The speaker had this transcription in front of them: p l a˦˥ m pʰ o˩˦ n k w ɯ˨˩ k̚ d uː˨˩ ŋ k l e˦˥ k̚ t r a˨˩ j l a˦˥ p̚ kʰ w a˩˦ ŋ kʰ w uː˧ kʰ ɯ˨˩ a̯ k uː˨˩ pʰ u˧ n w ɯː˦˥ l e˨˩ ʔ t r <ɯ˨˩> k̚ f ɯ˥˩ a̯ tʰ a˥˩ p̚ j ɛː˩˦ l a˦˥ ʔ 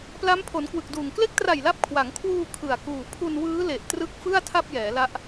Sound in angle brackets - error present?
yes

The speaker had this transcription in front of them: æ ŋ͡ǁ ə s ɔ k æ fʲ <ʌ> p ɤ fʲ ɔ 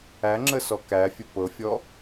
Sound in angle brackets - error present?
yes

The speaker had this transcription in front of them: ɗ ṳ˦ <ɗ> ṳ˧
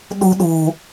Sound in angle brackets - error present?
no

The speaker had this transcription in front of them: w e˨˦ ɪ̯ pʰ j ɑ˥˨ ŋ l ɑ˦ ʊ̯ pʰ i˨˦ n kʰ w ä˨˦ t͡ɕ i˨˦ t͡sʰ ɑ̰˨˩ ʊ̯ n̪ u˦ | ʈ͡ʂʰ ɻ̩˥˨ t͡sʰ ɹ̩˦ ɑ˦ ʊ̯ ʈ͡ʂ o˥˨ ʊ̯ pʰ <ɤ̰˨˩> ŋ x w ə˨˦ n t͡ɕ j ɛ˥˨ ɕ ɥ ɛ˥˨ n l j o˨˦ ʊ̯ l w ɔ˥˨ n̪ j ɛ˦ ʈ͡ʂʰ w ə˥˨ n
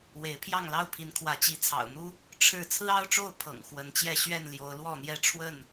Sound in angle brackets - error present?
no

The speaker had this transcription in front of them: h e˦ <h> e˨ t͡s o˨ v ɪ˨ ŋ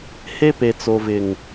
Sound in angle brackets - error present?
yes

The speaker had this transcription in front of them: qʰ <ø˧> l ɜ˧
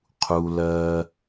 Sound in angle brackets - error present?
yes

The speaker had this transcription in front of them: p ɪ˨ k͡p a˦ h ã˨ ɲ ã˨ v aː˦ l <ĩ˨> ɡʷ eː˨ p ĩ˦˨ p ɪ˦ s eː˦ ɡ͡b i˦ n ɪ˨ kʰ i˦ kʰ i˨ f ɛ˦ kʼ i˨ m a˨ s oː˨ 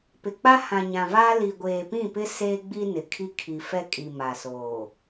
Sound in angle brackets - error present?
yes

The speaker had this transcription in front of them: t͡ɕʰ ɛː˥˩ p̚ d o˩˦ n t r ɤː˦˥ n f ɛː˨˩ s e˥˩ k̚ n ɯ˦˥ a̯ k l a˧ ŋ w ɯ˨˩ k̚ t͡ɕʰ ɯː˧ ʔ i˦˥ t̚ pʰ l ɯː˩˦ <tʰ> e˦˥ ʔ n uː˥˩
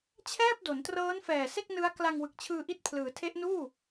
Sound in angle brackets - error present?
no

